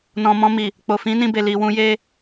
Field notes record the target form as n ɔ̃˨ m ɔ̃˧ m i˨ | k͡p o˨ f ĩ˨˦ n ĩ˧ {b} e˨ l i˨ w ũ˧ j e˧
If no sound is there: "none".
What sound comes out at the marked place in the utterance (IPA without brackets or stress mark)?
b